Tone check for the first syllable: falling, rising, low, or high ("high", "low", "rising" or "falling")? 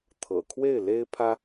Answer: low